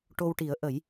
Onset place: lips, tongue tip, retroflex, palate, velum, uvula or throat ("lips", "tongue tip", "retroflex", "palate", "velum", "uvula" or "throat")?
retroflex